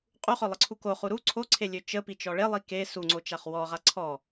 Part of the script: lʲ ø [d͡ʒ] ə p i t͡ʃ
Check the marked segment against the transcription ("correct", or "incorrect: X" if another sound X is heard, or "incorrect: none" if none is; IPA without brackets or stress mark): incorrect: t͡ʃ